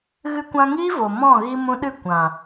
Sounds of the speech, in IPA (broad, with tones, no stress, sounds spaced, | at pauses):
ɣ ɨ˧ kʷ ã˧ ŋ iː˦ v o˨ m ɔ̃˦˨ ɣ i˧ m ũ˧ ɗ ɨ˦˨ kʷ ã˨